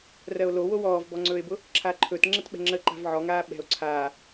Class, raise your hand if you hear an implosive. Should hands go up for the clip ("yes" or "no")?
yes